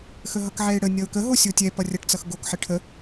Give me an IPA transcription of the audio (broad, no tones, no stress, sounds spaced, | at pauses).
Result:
x ə ɦ ʌ k ʕ ɛ ɪ̯ ɽ ə nʲ ʌ ʊ̯ k ə ɦ o sʲ o tʲ ɛ p ʌ rʲ ʌ ʈ t͡s ʌ x ɡ o k ħ ə ʈʰ ə